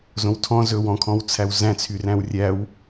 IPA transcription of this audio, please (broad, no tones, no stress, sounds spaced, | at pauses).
z õ w tʰ ɔ̃ z ɵ w ɔ̃ kʰ ɔ̃ w t͡sʰ æ w z æ̃ t͡sʰ y r æ̃ w rʲ æ w